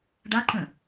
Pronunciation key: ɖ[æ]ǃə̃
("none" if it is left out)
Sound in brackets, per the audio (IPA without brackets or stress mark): a